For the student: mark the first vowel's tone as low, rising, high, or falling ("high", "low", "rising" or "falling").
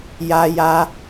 high